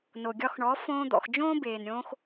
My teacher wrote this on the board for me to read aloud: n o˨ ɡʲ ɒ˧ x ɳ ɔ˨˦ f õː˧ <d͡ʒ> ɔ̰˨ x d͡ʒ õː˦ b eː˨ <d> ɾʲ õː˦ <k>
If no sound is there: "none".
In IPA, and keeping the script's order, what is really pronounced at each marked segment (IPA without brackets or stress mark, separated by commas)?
d̪, n, x